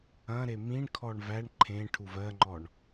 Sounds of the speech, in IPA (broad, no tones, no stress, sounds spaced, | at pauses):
ɐ̃ ɾ e m ĩ ɳ kʰ ɔ ɳ v æ ɳ ǃʰ ẽ ʈʰ u v ɜ ŋ͡ǃ ɔ ɳ